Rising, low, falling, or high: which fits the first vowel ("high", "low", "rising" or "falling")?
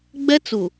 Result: high